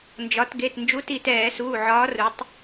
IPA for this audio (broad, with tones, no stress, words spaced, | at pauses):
nd͡ʒɒ˩˧tɡe˩˧˩t nd͡ʒu˨˥ti˧˩ tɛː˧˩˧suː˩˧˩ ʕɒː˨˥ru˩˧tˤ